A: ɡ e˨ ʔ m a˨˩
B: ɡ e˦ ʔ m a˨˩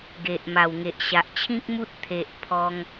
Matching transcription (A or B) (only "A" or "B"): A